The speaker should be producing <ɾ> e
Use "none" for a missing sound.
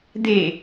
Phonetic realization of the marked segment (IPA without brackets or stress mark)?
d̪